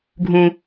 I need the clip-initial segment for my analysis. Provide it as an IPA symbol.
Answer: ɡʱ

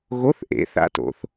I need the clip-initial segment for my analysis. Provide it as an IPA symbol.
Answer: ɣ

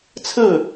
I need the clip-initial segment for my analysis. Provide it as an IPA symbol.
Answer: t͡sʰ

